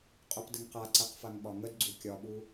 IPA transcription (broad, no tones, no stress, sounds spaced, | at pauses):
qʼ o p d ə ŋ q a ǀ ɛ q f a ŋ ɓ ɒ ŋ ə d ɡ͡ǀ u kʲ ɒ ɓ u